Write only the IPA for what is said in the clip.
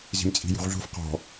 zi̤mt͡sʼi̤jṳʁɮṳf qɔ̤

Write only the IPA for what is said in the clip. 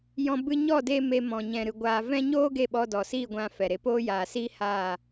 jɔ̃˧ bɨ˧ɲɔ˦˨deː˧ me˧mɔ̃˨ ɲɛ̃˨ɾɨ˨ ɡʷaː˧ vɛ̃˦ ɲoː˦ ɡe˦˨ɓɔ˧dɔ˨siː˦˨ ɡʷã˧fɛ˨ɾe˧ poː˦jaː˨siː˦ haː˦˨

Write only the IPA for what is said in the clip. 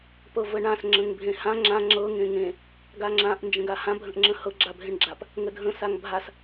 pɤvəɳãs ŋ͡ǁə̃ŋbʱẽhã ŋ͡ǁã ŋ͡ǁɤ ŋẽŋẽ | ɡaŋ͡ǁãʔ nd͡ʒə̃ɡahã bʱə̃ʔŋ͡ǁə̃hɤ ɡ͡ǁabʱẽɳɡ͡ǁap | ŋədʱə̃ saŋbʱas

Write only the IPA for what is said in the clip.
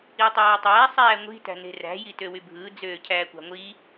itˤæːtˤæː sˤæːŋʷi̤ tæ̤ne̤ræ̤ jitøwybʱɯː d͡zøːcʰæːkʷɑ̤ŋʷi

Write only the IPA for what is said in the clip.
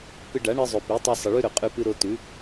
pɨ˧ɖa˨˦ɳɨ˧zˤʉ˨ pi˨˦tˤɨ˧ sˤɨ˨ɭʉ˦ɾɵ˨ qʼʉ˧pɨ˧ ɾo˧tʉ˨˦

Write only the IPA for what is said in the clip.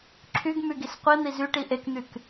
ǁʰyɡmyɡis qʷin̪i zyʈi ʔekn̪yk

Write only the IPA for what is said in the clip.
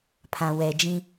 pʰã˨wɛ˨d͡ʒĩ˦

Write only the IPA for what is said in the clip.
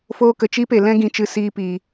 foː˦kə˧t͡ʃiː˦pe˨ lɛ̃˦ɡĩ˧t͡ʃɨ˧ siː˧piː˨

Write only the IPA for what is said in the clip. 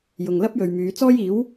jʊ˨ŋlɐ˥p̚jɵ˨ɥmyː˨˧ t͡sɔː˥jiː˨˥w

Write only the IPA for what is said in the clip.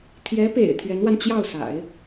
t̪ʰjɛ˧˥pḛ˨˩ɪ̯ t̪ʰɥɛ˧˥nwa˧n t͡ɕjɑ˥˩ʊ̯sa̰˨˩˦ɪ̯

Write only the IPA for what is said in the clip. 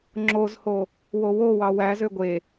ŋ͡ǁozho | wowowɑ wæzø ɡʷe

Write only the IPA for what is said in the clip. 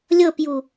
lʲɤpju

